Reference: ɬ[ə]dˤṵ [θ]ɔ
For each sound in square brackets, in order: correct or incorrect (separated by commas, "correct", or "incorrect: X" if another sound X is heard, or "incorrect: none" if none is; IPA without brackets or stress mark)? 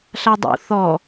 incorrect: a, correct